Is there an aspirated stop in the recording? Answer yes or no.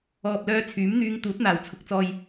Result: yes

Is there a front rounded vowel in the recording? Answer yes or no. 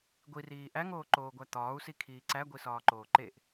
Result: no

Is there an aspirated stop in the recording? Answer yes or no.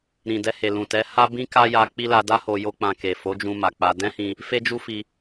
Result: no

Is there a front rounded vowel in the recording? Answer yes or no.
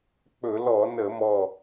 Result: no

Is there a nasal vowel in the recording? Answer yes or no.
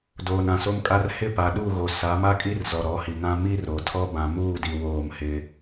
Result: yes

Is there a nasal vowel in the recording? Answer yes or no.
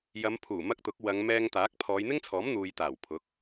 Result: no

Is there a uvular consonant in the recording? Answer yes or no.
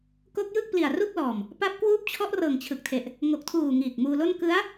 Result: no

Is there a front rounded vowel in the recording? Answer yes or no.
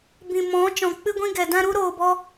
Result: no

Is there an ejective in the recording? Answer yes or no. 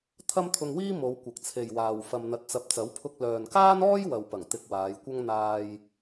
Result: no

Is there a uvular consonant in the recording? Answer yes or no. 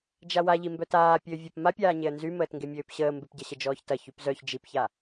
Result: no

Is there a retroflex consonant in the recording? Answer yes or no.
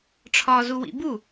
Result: yes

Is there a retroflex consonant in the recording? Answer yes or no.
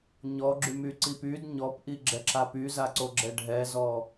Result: yes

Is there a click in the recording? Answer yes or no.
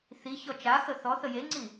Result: yes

